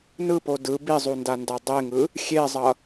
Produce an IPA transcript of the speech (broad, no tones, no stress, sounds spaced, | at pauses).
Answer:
n ɯ p o d ɯ b i zˤ u n d a n d a dˤ e ŋ ɯ | xʲ e zˤ ʌ